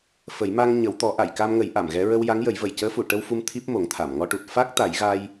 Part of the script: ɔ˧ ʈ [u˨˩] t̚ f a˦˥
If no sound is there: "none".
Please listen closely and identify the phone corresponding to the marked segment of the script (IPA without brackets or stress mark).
u˨˩